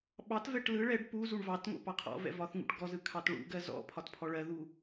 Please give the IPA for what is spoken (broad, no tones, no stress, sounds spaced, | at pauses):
ɓ ɑ t v ɛ ʈ l ɯ ɭ ɛ ɖ p u z u ɳ v ɑ t ŋ o̰ p ɑ qʰ ɔ̰ v ɛ̰ v ɒ θ ŋ ṵ ʈ ɡ ɔ z ɯ kʰ ɑ t ɭ ṵ ɡ ɜ z ɔ̰ pʰ ɒ t pʰ ɔ ɭ ɜ ð u